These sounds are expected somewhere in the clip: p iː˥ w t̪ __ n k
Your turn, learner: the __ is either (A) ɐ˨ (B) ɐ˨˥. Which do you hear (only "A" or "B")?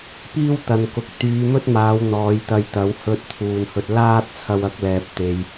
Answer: A